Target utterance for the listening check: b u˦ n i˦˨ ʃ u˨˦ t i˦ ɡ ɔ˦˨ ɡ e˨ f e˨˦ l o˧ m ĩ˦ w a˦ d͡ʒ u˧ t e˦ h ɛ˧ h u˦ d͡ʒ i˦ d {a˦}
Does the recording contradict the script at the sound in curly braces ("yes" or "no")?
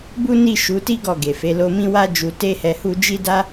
no